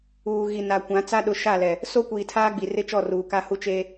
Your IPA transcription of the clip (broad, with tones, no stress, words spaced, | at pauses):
uː˨ɣi˨na˨kʷã˨˦ t͡sa˦ɗʊ˨˦ʃaː˦˨lɛ˨ | so˦kʷiː˨tʰaː˦ɡ͡bi˨ rɪ˦t͡ʃɔ˦˨ ruː˨ka˦hu˦ t͡ʃeː˦